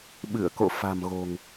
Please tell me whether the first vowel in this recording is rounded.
no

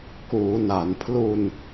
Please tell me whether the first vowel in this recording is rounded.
yes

